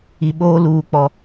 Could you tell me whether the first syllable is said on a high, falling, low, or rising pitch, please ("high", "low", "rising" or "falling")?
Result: low